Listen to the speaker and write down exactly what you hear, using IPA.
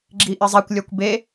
ɡ͡ǁ i ʔ ɪ zˤ e kʷ lʲ ɔ kʷ b e

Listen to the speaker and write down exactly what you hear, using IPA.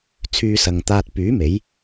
t͡sʰ yː˧ s ɐ˨ ŋ t̪ aː˧ t̚ p yː˨˥ m e˨˥ j

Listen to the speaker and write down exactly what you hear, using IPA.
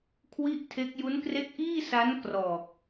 kʰ w i˥˩ ʔ tʰ e˦˥ k̚ j u˦˥ n k r e˦˥ k̚ ʔ iː˥˩ s a˦˥ n k r ɔː˨˩ k̚

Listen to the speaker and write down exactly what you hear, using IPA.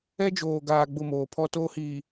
ɛ˦ d͡ʒ oː˨ ɡ aː˨ ɡ͡b ʊ˦˨ m oː˨ pʰ ɔ˦ t oː˦ h iː˨

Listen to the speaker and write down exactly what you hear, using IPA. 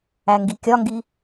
æ ŋ ɡ i kʲ ɒ ŋ ɡ i

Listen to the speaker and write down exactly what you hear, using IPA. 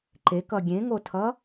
ǃ e k ʌ ɡʲ ẽ ŋ o tʰ ʌ

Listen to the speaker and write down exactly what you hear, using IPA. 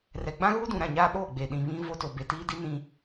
r ɛ˨ ɡ͡b ã˦ ɣ uː˦ d ũ˨ ɾ ã˦˨ ɲ aː˦ ɓ oː˦˨ ɡ͡b eː˨ ɗ ĩ˨ β ĩ˦ v o˦ t o˨ b e˨ t iː˦ d i˦ n ĩ˦

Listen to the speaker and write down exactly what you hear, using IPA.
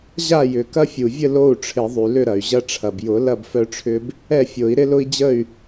ʑ a˥˨ j ʏ˩ k ɐ˦ fʲ u˩ vʲ ə˥˨ l o˥˨ u̯ ʈ͡ʂʰ ɪ˨˩˦ ðˤ y˩ l ʏ˥˨ ɾ ɐ˩ y̯ ʑ ɐ˦ ʈ͡ʂʰ ɐ˩ b j ʊ˨˩˦ l ɐ˥˨ b f œ˦ ʈ͡ʂʰ ʏ˦ b | ɛ˥˨ fʲ o˨˩˦ i̯ ɾ ɪ˦ l ʊ˦ i̯ d͡ʑ ə˥˨ y̯

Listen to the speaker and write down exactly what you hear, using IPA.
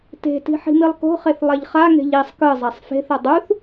t e̤ t i̤ ħ i̤ m i lˠ k o̤ χ e θ lˠ ɛ ʎ χ a ŋ e̤ ʎ i sˤ k ɯ zˤ a sˤ f e̤ θ ʌ dˤ u θ

